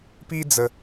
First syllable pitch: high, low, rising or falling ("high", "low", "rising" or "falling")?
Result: high